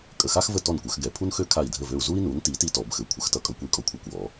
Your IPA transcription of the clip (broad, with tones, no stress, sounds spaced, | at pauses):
kʼ ə˧˩ x a˥ x v ə˥˨ t ɔ˥˨ n kʷ œ˨˩˦ x ɡ ɛ˨˩˦ pʰ u˥ n x ø˥ kʰ a˥˨ i̯ dʱ ə˥˨ v ø˥˨ u̯ z u˥ i̯ n u˨˥ n t i˨˥ t i˥ t ɔ˨˩˦ b x ɘ˧˩ kʷʰ ə˨˥ x t ʌ˥ kʼ ʌ˥ kʷ i˥˨ kʼ ɔ˥ kʷʰ œ˥˨ kʷ w ɔ˨˥